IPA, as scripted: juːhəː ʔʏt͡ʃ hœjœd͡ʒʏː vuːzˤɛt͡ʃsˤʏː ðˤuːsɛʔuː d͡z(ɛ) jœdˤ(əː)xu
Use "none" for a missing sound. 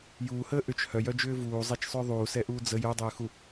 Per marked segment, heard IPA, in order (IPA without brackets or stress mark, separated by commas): ə, ʏː